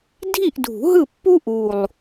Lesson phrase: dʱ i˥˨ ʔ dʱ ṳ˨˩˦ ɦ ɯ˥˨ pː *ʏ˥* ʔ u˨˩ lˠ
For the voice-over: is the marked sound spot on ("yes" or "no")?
no